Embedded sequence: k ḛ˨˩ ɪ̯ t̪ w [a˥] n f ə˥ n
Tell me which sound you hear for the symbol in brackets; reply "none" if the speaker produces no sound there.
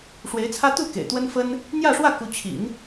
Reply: ə˥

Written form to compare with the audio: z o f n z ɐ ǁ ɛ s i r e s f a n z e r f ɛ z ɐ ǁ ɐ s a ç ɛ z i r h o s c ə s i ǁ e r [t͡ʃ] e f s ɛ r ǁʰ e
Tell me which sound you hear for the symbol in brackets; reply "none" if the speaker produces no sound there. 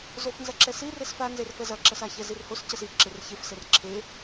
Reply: ç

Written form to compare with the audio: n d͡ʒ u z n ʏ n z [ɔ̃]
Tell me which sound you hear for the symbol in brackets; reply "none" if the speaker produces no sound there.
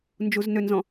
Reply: ɔ̃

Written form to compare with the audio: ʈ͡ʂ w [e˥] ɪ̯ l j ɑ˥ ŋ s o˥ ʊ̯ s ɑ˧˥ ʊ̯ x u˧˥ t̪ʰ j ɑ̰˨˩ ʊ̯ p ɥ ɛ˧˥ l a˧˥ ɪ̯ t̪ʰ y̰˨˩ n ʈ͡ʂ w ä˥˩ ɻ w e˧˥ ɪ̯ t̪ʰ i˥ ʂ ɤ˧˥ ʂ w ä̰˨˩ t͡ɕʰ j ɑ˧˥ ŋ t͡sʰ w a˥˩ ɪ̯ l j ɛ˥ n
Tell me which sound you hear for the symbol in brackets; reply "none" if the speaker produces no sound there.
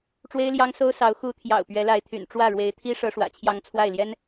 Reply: e˥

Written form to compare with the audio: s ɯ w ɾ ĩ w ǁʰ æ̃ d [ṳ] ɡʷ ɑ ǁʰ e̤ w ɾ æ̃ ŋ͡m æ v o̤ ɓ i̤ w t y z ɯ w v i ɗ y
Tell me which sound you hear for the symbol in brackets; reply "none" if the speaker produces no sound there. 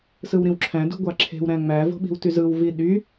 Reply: ṳ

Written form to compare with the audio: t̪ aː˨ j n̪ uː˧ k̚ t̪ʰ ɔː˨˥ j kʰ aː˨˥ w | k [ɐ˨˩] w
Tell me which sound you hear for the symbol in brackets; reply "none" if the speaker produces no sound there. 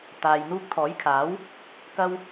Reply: ɐ˥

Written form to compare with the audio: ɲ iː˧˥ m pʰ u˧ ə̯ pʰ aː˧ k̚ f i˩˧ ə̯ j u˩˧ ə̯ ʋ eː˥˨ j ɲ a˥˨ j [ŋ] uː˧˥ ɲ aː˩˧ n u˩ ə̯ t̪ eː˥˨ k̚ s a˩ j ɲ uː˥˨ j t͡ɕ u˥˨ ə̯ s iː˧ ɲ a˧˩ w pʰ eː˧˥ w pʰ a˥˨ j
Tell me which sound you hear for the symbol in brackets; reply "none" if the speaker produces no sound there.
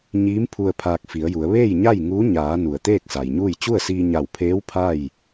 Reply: ŋ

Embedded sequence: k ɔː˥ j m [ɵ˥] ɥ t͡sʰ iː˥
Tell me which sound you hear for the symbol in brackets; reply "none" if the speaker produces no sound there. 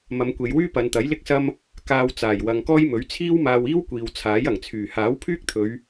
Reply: ɵ˨˥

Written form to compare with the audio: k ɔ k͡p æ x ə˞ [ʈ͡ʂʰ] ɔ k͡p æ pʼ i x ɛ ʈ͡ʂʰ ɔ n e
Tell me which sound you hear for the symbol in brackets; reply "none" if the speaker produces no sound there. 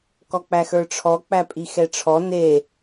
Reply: ʈ͡ʂʰ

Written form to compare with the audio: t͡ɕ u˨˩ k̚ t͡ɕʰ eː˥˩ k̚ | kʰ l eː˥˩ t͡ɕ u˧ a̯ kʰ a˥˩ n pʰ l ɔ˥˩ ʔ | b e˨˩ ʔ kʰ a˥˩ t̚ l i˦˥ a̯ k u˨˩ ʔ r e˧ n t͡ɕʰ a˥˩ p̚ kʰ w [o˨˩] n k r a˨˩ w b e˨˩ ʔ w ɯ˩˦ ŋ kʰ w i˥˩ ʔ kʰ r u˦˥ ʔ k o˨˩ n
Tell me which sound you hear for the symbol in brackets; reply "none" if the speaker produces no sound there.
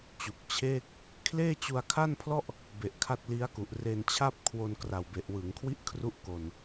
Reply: o˧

